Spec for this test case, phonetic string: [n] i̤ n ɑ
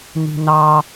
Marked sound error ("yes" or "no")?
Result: no